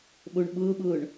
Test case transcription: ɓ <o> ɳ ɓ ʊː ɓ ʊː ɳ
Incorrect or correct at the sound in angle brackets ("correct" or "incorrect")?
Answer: correct